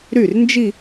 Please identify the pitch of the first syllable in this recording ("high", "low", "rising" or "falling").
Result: falling